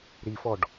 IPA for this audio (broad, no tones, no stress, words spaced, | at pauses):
ɾifɔɖ